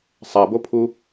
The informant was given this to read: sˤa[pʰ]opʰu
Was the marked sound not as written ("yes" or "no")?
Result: yes